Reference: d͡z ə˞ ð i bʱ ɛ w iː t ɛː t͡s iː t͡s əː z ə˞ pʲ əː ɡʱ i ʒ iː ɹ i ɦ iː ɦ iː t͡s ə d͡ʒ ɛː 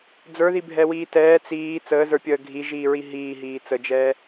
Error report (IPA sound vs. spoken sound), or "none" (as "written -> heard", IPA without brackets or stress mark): none